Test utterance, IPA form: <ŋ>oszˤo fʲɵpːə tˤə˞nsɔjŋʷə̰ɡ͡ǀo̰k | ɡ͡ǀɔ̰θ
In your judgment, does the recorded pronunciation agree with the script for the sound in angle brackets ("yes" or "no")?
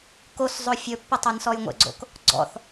no